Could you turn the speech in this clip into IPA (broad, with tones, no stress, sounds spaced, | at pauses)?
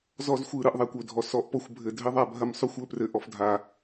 z ɔ˦ z xʷ ɯ˨ ɾ ɯ˨ ʔ ðˤ a˨ kʷ ɵ˦˨ dʱ ɔ˨ s ɔ˨ ʔ p ɔ˦ xʷ bʱ ɘ˨ dʱ ɘ˦ ðˤ a˨ bʱ ɐ˦ m sˤ o˦ xʷ ɵ˨˦ p r ɘ˨ ʔ ɔ˨ f dʱ a˨